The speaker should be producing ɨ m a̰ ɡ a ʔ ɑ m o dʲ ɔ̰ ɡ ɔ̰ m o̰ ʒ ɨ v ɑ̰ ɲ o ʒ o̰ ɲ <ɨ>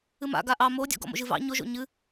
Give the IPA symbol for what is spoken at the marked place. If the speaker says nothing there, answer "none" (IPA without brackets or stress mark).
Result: ɨ